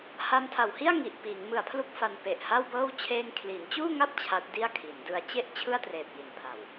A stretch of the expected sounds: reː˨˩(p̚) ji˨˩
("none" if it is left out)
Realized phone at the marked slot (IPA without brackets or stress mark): p̚